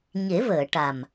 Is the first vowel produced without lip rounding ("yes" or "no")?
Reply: yes